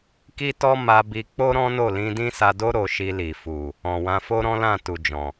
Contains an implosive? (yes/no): no